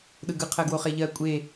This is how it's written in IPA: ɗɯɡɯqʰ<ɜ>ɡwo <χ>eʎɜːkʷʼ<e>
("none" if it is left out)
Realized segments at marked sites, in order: ɜ, χ, e

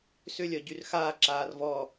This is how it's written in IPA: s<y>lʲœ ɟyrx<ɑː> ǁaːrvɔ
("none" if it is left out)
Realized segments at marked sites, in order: ʏ, aː

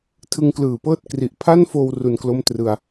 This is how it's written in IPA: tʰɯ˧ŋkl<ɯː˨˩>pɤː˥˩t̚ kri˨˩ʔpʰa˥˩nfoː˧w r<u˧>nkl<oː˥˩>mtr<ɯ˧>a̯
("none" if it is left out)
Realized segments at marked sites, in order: ɯː˨˩, u˧, o˥˩, ɯ˧

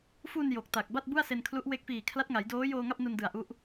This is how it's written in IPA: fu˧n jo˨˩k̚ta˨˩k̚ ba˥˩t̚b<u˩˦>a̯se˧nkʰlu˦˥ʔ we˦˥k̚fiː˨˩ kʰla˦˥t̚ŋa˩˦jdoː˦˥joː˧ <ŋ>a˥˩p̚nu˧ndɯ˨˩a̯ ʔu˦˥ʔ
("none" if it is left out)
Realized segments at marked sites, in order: u˥˩, ŋ

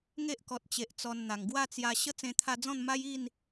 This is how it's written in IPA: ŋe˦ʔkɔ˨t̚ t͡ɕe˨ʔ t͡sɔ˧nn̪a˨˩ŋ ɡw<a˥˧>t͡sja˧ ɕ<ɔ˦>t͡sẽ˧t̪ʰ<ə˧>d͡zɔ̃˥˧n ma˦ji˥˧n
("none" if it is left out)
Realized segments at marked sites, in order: a˥˧, ə˦, a˧

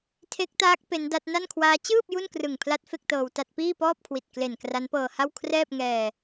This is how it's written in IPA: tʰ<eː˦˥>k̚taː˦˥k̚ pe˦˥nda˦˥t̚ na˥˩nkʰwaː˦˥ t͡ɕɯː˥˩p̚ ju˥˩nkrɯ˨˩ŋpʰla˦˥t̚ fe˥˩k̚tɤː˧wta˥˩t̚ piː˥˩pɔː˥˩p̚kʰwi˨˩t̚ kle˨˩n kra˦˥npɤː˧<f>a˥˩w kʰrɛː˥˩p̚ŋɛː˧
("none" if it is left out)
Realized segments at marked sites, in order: e˦˥, h

